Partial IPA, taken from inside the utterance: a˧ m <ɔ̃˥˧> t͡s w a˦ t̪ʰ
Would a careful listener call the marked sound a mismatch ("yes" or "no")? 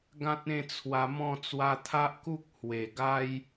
no